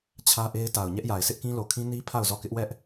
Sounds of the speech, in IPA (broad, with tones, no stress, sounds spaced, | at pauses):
t͡ɕʰ ä˦ ʔ e˦ ɪ̯ t a˨ ʊ̯ ɲ ɛ˦ ʔ j a˨ ɪ̯ s ɪ˦ ʔ k ĩ˦ l o˨ kʰ ĩ˦ n i˦ pʰ a˦˨ ʊ̯ z ɔ˦˨ k ɪ˦ ʔ w ɛ˦ ʔ